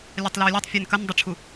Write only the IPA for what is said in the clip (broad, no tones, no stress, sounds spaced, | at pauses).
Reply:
lʲ a tˤ l a ə̯ lʲ ɛ tˤ fʲ ɛ n k ɐ n dˤ ə ʈ͡ʂʰ u